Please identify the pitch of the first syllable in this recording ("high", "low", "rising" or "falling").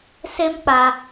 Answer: high